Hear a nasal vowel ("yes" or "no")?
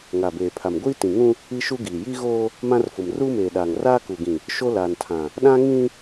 yes